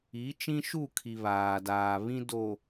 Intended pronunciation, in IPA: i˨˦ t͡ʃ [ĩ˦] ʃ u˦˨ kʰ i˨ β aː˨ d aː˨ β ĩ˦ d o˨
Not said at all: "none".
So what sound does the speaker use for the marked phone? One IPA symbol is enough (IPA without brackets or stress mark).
ĩ˦